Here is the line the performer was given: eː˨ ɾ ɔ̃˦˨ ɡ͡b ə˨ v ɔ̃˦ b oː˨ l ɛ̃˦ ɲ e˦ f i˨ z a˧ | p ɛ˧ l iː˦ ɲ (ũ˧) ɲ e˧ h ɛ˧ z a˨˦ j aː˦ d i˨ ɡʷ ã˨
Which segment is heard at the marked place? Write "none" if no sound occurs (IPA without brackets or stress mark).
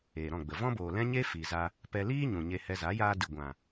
ũ˨